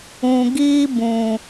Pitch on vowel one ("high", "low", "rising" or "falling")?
low